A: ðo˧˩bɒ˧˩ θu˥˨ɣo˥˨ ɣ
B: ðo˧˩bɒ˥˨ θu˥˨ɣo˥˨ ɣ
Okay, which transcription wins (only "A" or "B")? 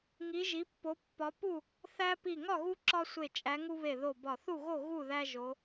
A